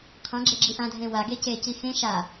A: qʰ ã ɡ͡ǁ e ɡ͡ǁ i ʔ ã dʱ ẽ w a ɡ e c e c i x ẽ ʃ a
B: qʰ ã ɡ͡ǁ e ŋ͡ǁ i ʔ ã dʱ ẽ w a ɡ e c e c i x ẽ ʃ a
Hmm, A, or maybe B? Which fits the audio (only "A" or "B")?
A